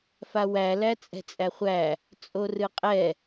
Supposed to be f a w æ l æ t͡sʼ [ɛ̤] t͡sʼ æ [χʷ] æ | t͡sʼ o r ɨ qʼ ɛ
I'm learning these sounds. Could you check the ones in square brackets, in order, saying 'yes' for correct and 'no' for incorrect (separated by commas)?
yes, yes